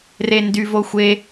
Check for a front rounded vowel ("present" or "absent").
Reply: present